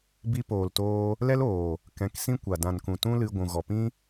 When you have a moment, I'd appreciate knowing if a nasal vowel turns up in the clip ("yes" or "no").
yes